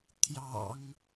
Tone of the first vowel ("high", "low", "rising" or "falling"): low